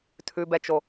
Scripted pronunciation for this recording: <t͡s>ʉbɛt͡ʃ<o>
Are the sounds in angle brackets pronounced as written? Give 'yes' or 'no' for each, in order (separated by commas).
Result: no, yes